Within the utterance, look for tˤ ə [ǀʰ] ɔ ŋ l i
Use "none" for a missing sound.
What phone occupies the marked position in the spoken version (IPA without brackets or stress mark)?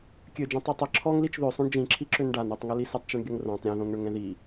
ǁʰ